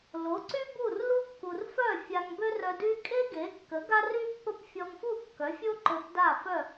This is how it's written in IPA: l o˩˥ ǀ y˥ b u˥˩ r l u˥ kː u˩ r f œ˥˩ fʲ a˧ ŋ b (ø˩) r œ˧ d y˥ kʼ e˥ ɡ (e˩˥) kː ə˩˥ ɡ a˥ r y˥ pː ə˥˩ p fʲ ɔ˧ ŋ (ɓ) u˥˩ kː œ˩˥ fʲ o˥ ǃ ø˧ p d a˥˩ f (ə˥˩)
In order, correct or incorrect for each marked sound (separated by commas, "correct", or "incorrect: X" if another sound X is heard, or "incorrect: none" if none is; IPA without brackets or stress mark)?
incorrect: ø˥, correct, incorrect: f, incorrect: œ˥˩